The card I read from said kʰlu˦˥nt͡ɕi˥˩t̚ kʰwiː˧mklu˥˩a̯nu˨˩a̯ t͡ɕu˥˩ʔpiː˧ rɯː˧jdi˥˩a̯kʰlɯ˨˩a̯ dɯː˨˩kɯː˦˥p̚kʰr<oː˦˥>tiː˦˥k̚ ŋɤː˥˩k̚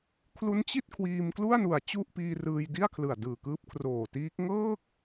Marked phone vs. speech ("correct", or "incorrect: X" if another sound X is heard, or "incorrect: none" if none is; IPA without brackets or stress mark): incorrect: oː˨˩